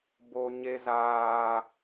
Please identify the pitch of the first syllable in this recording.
high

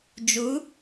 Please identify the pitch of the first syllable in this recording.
rising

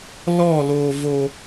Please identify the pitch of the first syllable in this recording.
falling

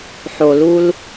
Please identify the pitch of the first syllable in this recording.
low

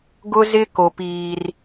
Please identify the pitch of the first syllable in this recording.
high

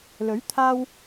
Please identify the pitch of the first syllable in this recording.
rising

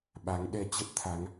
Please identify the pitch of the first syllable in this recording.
rising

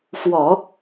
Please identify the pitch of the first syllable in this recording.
low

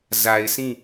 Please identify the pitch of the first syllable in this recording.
low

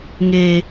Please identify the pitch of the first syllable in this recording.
high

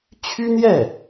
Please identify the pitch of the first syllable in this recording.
high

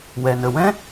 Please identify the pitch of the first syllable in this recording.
low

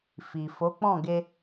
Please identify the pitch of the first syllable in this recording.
low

